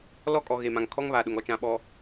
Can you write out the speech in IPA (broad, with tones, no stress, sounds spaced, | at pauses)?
l ɔ˦˨ kʼ ɔ˨ ɣ e˨ m ã˨ ŋ kʰ ɔ˦ ŋ β a˨ ɗ ʊ˨ ŋ ɔ˦ t͡ʃ ã˨ ɓ ɔ˨